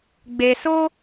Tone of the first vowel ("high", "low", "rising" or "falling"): low